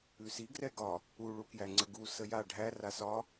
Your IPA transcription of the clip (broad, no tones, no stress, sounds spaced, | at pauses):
ʉ s i ɡ r ɛ ɡ ɒ | u ɭ u k j æ ŋ͡ǀ ə ɡ u s ə j a ɖʱ æ r a s ɒ